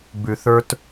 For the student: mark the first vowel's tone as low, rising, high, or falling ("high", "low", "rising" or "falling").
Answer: low